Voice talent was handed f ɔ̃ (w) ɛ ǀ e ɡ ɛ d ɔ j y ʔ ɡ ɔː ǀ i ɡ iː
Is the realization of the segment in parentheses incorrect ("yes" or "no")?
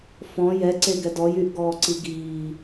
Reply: yes